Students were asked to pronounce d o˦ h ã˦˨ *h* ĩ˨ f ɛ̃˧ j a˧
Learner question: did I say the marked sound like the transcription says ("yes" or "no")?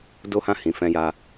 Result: yes